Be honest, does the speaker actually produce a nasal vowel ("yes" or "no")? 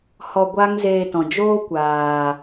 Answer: yes